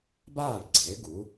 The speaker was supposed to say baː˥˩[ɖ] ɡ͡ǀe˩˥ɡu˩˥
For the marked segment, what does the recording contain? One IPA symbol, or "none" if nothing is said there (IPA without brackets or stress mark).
ɖ